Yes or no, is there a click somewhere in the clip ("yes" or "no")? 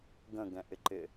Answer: yes